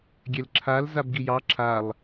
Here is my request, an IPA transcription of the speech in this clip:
ɡʲ ɛ l ǁʰ a l z a b ɡ i j ɑ ǁʰ a lˠ

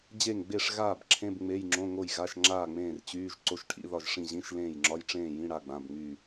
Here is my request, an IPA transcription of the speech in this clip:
d͡ʑ e˥˨ ŋ ɡ͡b e˥˨ ʂ ɣ aː˥˨ b ǁʰ ẽ˧˥˧ b ŋ͡m e˧˥˧ j ŋ͡ǁ õ˧˥˧ ŋ o˥˨ j ɣ a˧˥˧ ʃ ŋ͡ǁ aː˥˨ ŋ͡m ẽː˥˨ r t͡ɕ yː˧˥˧ ʒ ǀ o˧˥˧ ʃ ʈʰ ḭ˧˥˧ ð ɒ˥˨ ʒ ʂ ĩ˥˨ ʑ ĩ˧˥˧ ʃ l ẽː˥˨ j ŋ͡ǁ ɒ˧˥˧ j ʈ͡ʂ ẽː˥˨ j ĩ˧˥˧ ɽ a˧˥˧ ɡ͡b ã˧˥˧ b ŋ͡m yː˥˨

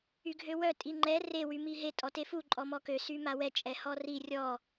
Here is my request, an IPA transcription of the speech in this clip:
y ɡʱ ø w œ tʼ i ŋ͡ǃ ɛ r e w y m i ɦ e tʼ ɔ t e f u ǃʼ ɔ m ɔ k ø s y m a w ɛ t͡ʃʼ ɛ h ɔ r i rʲ ɔ

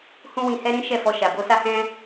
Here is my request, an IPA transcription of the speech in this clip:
h ũ˦ w ĩ˧ h ɛ˦ ɾ ĩ˦ ʃ ɛ˦˨ f ɔ˧ ʃ a˨ b o˧ s a˦ h ɛ̃˦

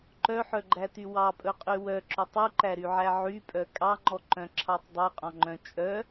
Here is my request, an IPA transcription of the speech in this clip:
ǃ œ ħ œ ɡ͡ǃ æ t y w ɑ pʼ ɵ qʼ y w œ ǁ ɵ tˤ u ǃ æ ɾ y ʕ æ ʕ y pʼ œ kʼ ɑ ŋ͡ǃ ɔ ǃ œ̃ ǁʰ ɑ tˤ dˤ œ qʼ ɔ̃ ŋ͡ǃ œ̃ t͡ʃʼ œ

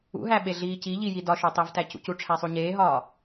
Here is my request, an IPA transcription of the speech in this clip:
ṵ ɦ æ ɓ e ɮ iː c i ʎ i j i d ɒ ʃ o tˤ i v t æ c ṵ c u ʈ͡ʂʰ æ sˤ u ɲ eː ɦ ɒː

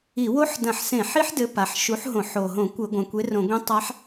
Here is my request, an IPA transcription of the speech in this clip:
i˧˩˧ w o˦˥ ħ d ɐ̃˧˩˧ ħ s ẽ˧˩˧ ħ i˦˥ ħ d ɘ˨˥ p a˩˧ ħ ʃ u˨˥ ħ ɦ õ˧˩˧ ħ o˨˩ ɦ õ˧˩˧ kʷ ɘ˧˩˧ ɡʷ ɐ̃˩˧ kʷ e˨˥ r õ˧˩˧ ɡʷ ẽ˦˥ tˤ a˦˥ ħ

